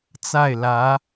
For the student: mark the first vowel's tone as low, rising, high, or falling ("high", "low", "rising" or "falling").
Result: falling